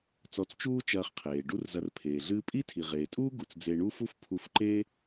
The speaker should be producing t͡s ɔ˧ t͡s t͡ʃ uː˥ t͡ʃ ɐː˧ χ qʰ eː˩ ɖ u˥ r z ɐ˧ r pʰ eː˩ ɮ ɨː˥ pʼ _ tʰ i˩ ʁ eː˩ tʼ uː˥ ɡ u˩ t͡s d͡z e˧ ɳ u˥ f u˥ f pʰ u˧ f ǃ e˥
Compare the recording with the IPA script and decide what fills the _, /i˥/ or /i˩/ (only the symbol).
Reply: i˥